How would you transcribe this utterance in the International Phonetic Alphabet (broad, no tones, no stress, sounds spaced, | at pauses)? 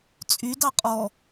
t͡sʼ y d ɑ qʼ ɔ